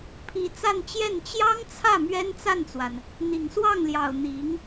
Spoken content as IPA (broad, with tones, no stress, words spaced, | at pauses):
pʰi˧˥ t͡sa˥˧nt͡ɕjɛ˥˩n t͡ɕjɑ˥ŋt͡sʰä˥˩ mɥɛ˥nt͡sa˥˩nt͡swa˩n | n̪i˨˩ŋswɑ˥˩ŋljɑ˨˩ʊ̯ n̪i˧˥ŋ